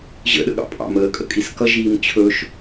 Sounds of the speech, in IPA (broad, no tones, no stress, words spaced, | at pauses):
ʑə̰ɗə̰ ɠɑ̰pʼɑ̰məːkʼə̰ kʼiskʌʒiːm t͡ɕʰɵʃ